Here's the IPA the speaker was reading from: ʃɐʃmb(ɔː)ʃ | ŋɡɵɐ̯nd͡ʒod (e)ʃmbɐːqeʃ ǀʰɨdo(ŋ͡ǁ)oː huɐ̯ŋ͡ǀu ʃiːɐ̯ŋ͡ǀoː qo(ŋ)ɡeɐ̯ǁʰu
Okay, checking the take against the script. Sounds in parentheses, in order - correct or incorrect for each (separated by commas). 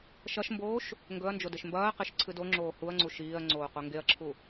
incorrect, correct, correct, correct